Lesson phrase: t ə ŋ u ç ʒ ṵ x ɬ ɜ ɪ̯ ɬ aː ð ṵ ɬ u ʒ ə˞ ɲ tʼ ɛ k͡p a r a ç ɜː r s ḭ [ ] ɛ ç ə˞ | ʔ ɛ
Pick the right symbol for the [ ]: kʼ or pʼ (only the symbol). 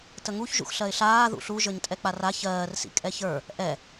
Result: kʼ